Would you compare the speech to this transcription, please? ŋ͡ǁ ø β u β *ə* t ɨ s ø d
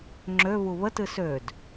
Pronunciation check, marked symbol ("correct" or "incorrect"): correct